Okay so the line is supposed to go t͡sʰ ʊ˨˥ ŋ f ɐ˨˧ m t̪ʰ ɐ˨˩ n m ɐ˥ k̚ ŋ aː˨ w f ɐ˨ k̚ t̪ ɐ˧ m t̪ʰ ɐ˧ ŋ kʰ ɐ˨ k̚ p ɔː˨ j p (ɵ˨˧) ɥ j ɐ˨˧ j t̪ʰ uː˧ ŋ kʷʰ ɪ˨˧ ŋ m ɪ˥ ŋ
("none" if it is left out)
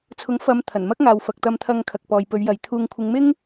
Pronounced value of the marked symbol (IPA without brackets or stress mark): ɵ˨˧